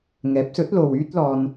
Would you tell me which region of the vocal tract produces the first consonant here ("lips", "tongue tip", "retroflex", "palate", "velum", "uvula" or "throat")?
velum